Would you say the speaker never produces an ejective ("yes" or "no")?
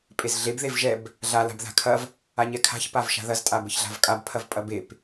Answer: no